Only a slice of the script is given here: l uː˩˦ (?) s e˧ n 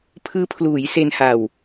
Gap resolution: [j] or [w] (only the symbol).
j